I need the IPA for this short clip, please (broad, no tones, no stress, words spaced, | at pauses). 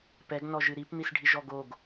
pɛɡ nɔʒɨɾipn̪is ɖʱiʒɔɡoɡ